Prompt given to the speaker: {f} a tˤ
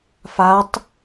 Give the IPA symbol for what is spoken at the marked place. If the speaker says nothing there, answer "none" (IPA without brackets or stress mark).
f